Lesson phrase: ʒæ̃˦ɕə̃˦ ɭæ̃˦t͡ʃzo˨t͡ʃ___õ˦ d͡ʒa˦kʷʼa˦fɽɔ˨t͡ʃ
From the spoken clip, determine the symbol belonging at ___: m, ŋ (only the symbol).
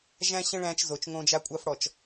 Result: ŋ